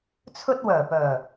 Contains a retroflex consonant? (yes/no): no